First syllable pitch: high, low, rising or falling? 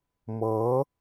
rising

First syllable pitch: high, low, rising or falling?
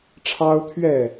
high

